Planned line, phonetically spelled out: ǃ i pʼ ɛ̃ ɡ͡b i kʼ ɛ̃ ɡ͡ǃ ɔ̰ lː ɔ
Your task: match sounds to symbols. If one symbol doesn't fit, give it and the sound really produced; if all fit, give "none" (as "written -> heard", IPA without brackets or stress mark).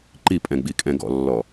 ɡ͡ǃ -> ɡ